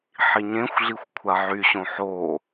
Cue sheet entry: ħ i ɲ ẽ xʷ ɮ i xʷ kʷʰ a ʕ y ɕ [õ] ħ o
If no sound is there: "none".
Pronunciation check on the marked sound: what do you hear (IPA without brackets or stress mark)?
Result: õ